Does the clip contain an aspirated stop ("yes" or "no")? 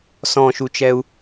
no